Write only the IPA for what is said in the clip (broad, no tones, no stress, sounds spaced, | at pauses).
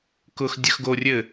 k ʊ x dʲ ə x ɡ o rʲ ɘ